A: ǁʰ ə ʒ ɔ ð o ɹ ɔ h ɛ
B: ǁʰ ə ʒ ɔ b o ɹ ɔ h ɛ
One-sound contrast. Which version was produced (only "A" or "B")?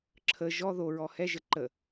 A